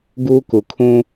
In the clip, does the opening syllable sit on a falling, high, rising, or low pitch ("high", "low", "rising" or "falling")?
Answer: high